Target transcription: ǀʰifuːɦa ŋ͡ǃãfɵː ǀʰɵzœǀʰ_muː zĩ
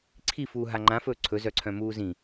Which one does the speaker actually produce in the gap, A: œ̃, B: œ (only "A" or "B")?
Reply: A